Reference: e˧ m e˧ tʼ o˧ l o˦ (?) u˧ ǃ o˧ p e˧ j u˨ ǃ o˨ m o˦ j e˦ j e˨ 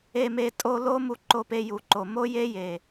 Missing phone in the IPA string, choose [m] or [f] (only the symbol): m